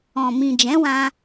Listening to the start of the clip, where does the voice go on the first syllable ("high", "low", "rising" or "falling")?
low